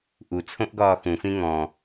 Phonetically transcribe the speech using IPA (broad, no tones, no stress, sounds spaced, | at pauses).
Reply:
ʔ u t͡sʰ õ ʔ ɡ ɒː x ũ f ĩ ŋ ɔ̃